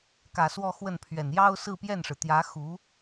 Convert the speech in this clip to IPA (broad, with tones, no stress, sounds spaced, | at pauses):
k ä˨˩ s w ɔ˥˧ x w ə˥˩ n pʰ ɥ ɛ˨˩ n j ɑ˥ ʊ̯ s ɹ̩˥˧ p j ɛ˥˩ n ʂ ɻ̩˩ t̪ j ä˧˥ x u˧˥